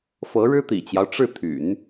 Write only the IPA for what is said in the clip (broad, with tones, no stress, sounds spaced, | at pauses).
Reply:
f ɤ˧˥ ɻ ɻ̩˥ t̪ ḭ˨˩ t͡ɕ j ɑ˦ ʊ̯ ʈ͡ʂ ɻ̩˥˩ t̪ʰ y̰˨˩˦ n